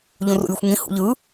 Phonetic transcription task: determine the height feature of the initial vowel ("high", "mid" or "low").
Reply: high